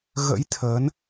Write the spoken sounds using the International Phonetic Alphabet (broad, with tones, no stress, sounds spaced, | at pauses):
ɣ ə̰˧˥ j t̪ʰ ə˨˦ n